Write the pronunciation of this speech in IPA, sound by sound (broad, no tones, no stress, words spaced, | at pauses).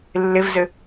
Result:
lːɪvzɘ